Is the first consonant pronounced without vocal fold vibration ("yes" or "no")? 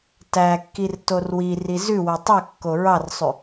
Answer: yes